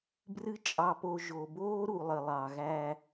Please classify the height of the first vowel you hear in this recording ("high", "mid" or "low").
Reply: high